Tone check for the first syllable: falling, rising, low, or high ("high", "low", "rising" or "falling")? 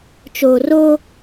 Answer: low